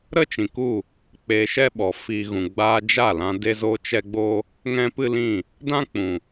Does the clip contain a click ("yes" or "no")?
no